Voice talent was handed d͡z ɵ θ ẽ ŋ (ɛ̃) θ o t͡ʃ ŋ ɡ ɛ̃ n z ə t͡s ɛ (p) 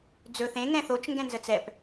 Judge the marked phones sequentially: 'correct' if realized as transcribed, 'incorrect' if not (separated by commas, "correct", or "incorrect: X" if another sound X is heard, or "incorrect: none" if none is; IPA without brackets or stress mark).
correct, correct